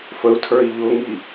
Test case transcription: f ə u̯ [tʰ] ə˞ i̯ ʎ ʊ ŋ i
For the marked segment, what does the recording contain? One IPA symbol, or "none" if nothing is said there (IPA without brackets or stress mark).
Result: tʰ